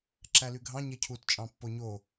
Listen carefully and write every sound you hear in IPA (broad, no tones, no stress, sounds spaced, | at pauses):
ǁ æ l y ɡʱ ɑ̃ ɲ e cʰ u t t͡ʃʼ ɑ̃ pː o ɲ o